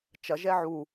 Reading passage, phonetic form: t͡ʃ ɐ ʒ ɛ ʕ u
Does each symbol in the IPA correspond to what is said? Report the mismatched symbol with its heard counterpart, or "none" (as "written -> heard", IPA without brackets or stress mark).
none